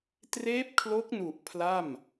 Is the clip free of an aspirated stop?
no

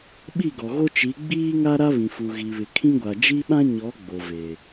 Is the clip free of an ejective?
yes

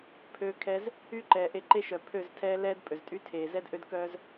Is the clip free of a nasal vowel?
yes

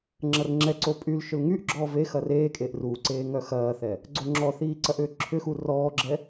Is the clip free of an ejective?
no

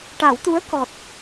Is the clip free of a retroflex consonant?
no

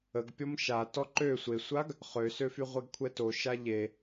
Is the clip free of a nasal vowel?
yes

